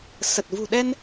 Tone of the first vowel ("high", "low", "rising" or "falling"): low